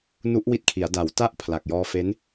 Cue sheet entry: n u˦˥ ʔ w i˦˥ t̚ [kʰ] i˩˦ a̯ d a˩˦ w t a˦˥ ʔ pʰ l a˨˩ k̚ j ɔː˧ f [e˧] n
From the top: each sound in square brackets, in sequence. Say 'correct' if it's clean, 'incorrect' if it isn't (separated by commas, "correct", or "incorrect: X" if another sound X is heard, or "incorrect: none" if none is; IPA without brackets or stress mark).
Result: correct, incorrect: e˦˥